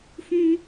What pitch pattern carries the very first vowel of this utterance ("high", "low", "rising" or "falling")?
high